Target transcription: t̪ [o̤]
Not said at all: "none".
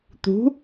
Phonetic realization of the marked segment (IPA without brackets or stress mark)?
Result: ṳ